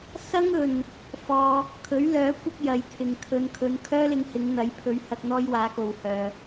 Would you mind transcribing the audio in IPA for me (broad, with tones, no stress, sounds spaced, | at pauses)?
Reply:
s ɐ˥ ŋ ɵ˨ n | f ɔː˧ | kʰ ɵ˨˥ ɥ l œː˨˥ kʷ ɐ˥ k̚ j ɐ˨˧ j t̪ʰ ɪ˨ ŋ kʰ ɵ˨˧ n kʰ ɵ˨˧ n kʰ œː˥ l ɪ˧ ŋ h ɪ˨˧ ŋ n̪ ɐ˨˥ j pʰ ɵ˨˧ ɥ h ɐ˧ k̚ n̪ ɔː˥ j w aː˨˥ k o˨ w h œː˨